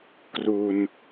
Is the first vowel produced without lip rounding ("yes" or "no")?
no